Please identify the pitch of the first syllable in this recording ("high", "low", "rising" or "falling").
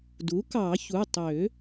rising